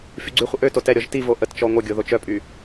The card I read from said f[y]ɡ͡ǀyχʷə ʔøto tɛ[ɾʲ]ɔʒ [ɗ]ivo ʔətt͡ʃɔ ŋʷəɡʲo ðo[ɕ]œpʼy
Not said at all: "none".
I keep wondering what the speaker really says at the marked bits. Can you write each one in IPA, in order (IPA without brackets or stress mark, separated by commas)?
y, ɾʲ, t, t͡ʃ